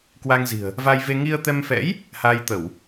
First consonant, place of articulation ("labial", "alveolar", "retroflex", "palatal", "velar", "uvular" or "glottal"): velar